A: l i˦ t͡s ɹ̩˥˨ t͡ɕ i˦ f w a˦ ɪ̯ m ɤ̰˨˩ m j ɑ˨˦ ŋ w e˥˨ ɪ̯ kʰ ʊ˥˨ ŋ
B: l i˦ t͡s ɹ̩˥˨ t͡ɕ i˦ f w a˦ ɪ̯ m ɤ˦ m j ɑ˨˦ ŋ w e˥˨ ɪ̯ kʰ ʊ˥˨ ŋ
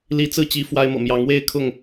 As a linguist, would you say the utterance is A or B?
A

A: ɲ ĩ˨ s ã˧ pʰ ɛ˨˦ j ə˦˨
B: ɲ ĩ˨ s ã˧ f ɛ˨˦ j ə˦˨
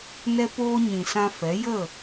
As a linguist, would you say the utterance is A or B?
B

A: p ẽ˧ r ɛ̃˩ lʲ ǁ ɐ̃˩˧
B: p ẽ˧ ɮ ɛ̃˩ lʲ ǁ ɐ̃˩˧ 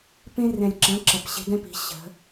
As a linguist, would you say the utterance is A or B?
A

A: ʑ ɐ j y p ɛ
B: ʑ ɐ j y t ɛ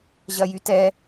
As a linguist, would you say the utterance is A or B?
B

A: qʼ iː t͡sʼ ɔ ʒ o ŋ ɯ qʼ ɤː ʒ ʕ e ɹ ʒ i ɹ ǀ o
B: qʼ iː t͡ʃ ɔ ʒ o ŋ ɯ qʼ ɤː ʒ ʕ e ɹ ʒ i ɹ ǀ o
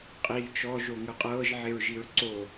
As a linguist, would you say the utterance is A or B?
B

